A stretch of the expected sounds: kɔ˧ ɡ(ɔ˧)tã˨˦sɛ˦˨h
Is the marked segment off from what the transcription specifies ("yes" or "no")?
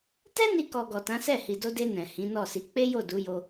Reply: yes